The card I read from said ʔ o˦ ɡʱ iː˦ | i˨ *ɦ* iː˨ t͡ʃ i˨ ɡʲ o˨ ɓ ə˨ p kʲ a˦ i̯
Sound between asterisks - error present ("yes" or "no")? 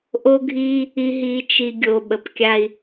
no